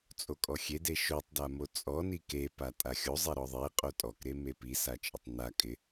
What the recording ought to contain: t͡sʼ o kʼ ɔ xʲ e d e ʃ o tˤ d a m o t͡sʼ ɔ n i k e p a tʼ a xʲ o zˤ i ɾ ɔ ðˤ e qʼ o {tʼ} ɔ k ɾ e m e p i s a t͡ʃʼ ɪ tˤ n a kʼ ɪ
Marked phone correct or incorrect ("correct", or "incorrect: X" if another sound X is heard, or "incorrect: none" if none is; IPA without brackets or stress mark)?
correct